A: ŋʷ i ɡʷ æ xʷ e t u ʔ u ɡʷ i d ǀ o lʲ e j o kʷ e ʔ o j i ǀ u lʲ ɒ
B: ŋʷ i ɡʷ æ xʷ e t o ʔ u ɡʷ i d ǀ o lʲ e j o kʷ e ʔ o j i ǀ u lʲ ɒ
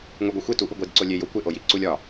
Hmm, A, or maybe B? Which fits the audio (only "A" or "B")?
A